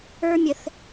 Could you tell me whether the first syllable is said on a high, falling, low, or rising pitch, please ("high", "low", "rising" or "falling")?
high